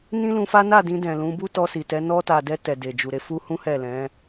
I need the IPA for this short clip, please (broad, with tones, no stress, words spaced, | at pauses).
nĩ˦lũ˧fa˦ na˦˨dĩ˧ dɛ̃˨lũ˨˦bu˦tɔ˧ si˨tɛ˨˦ nɔ˧ta˨dɛ˧ tɛ˨de˨d͡ʒu˨ɾe˨˦ fu˦hũ˦ hɛ˦˨lɛ̃˨˦